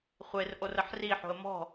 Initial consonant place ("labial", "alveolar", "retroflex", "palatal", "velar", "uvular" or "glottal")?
uvular